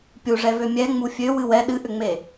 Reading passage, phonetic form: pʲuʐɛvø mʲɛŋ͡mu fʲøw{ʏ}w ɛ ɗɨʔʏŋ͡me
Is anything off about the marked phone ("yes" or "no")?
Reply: yes